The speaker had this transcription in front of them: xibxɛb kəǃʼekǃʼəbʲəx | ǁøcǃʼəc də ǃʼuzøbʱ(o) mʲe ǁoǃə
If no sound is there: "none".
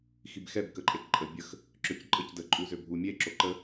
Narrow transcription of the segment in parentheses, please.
u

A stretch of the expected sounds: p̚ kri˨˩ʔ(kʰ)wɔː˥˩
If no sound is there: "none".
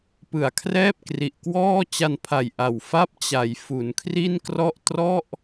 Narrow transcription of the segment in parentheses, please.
k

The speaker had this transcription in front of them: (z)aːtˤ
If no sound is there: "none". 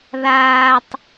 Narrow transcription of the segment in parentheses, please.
ð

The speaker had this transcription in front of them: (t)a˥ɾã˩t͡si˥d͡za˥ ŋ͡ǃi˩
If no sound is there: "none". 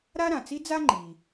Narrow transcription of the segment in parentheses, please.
ɾ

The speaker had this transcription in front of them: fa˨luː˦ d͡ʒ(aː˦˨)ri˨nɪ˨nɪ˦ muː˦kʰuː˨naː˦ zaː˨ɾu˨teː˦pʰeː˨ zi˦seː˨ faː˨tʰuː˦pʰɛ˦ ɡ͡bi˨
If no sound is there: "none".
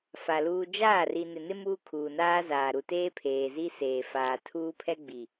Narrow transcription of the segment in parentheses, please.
aː˦˨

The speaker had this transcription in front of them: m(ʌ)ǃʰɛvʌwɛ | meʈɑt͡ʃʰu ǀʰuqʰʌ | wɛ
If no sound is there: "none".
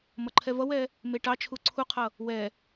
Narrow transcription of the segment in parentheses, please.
ʌ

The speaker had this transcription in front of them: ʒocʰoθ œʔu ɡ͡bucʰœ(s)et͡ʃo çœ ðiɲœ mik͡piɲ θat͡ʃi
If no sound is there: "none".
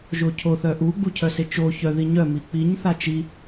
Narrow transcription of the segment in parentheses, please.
s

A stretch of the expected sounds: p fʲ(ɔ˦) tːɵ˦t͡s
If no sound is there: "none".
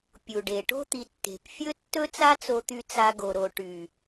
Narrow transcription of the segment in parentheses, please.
ɵ˦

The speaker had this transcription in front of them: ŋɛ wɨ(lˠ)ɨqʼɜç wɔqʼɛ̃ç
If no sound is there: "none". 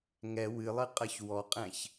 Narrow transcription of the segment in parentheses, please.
lˠ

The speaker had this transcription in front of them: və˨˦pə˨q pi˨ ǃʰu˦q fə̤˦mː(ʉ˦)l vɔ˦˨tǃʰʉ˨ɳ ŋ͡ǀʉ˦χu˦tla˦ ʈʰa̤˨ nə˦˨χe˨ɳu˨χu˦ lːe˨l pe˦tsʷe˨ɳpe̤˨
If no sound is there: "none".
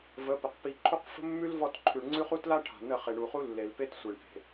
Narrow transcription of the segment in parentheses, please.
ʉ˦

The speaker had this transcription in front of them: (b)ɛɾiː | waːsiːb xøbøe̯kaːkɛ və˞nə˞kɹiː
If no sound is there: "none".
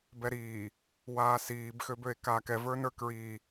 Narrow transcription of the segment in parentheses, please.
b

